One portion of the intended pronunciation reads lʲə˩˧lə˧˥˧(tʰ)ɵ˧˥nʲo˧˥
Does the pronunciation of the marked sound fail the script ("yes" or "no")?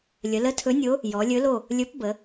no